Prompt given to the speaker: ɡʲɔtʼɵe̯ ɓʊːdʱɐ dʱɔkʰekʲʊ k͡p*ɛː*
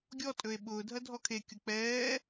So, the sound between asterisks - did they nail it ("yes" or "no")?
yes